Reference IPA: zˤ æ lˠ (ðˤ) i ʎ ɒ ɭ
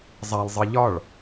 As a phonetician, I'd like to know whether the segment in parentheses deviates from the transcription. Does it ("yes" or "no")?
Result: yes